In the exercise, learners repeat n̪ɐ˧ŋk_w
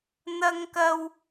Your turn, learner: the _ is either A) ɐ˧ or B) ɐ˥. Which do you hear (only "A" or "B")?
A